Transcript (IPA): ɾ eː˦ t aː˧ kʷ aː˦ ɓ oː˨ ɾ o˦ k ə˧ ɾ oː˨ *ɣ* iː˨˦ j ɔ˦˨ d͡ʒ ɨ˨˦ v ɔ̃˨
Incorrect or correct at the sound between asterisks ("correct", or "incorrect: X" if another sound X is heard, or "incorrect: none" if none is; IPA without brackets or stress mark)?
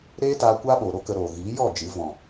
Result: correct